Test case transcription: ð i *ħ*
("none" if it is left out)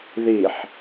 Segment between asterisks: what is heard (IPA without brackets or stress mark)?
ħ